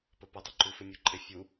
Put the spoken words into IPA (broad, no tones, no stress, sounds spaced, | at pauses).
p ə p ə dˤ ʏ ǃ u f ɪ mʲ u ǃʼ ɪ fʲ u